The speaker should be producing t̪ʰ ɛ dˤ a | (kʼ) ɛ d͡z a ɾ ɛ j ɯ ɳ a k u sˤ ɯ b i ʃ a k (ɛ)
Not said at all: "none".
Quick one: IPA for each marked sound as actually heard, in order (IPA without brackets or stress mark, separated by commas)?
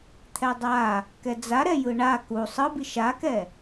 k, ɛ